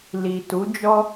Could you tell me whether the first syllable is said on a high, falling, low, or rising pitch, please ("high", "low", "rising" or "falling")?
low